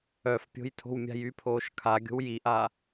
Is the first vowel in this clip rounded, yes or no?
yes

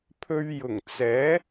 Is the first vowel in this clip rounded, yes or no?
yes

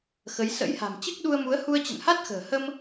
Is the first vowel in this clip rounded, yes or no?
no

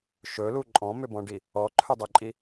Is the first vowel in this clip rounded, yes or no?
yes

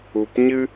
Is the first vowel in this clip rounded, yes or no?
yes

